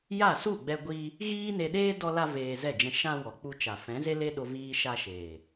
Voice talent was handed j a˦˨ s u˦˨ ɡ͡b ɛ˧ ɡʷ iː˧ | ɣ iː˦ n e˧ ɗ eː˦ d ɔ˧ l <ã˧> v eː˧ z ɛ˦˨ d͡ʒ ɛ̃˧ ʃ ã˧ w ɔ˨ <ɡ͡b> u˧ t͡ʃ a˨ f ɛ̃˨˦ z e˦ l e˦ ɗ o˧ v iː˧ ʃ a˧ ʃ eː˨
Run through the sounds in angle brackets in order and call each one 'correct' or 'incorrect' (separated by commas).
incorrect, incorrect